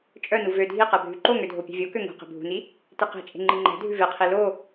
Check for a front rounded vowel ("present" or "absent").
present